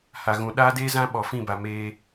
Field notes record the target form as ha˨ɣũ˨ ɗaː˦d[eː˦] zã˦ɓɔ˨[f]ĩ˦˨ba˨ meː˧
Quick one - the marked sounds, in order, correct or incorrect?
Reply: correct, correct

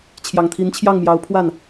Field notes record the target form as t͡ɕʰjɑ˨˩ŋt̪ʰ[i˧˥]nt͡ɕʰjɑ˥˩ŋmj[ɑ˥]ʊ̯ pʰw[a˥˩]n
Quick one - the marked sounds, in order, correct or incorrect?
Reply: correct, incorrect: ɑ˧˥, correct

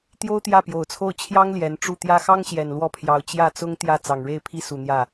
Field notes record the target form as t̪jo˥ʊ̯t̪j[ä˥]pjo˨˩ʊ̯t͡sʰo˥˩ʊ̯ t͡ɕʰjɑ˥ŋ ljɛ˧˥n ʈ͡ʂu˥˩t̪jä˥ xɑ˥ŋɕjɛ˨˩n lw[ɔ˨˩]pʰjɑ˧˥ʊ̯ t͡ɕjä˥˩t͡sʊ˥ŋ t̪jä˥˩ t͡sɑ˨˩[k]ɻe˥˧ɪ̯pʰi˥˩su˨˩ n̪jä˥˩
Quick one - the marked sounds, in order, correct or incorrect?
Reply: incorrect: ä˥˩, incorrect: ɔ˥˩, incorrect: ŋ

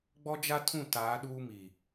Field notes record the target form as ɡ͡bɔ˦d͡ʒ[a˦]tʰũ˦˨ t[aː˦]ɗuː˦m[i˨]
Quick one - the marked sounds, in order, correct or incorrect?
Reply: correct, incorrect: aː˨˦, incorrect: iː˨

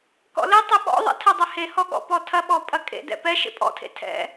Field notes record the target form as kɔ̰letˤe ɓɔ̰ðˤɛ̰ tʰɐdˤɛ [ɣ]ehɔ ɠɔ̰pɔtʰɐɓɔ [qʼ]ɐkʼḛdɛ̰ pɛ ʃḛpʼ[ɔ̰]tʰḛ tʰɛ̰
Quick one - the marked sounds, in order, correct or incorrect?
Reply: incorrect: h, incorrect: pʼ, correct

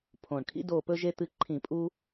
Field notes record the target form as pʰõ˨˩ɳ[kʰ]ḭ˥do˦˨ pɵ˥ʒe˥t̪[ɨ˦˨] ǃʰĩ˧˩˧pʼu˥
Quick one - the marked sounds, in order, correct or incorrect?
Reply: correct, correct

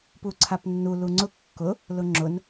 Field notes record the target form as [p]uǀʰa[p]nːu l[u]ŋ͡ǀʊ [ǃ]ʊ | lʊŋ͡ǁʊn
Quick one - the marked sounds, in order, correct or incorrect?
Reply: correct, correct, correct, incorrect: kː

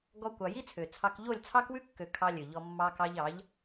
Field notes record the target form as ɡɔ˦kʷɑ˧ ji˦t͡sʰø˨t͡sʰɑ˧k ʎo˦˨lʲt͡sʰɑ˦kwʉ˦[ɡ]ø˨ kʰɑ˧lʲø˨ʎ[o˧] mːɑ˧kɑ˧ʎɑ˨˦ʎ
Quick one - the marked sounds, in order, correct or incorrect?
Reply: incorrect: kː, incorrect: ɔ˧

